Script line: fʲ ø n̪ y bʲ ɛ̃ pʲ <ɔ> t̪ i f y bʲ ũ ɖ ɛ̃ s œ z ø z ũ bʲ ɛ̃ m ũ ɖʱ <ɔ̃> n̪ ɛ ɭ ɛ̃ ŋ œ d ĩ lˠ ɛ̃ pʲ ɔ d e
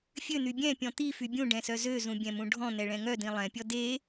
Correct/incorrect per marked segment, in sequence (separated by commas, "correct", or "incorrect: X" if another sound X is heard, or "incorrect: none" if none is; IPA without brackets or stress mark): incorrect: ɔ̃, correct